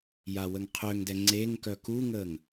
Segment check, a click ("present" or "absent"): present